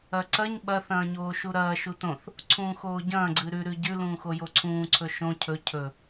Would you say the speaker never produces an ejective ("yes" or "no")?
yes